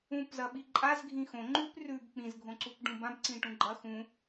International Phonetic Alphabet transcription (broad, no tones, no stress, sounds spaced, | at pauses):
ũ p z ɐ ɓ i ǃʼ a z ɡʱ ĩ x õ ŋ͡ǃ ʉ p r ʉ b k͡p ĩ z ɡʱ õ ǀ u p ɖ ũ b ã b ǀ ĩ ʈ ũ ɡ͡ǃ ɐ x ũ